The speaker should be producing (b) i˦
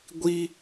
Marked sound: incorrect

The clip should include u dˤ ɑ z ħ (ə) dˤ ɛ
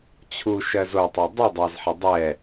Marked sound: correct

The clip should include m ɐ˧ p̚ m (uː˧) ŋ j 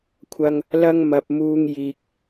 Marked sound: correct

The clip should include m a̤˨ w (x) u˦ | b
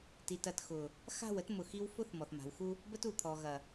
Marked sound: correct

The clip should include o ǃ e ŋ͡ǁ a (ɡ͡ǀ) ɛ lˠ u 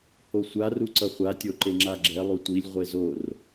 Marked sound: incorrect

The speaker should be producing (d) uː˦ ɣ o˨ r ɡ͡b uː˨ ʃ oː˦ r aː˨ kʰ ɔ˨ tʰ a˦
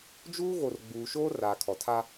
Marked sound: incorrect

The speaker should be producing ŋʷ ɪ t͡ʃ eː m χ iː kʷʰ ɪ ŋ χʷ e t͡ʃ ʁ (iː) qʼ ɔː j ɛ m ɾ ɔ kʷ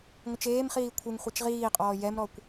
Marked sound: correct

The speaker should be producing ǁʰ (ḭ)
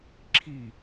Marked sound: incorrect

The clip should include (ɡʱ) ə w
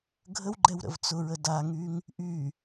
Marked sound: correct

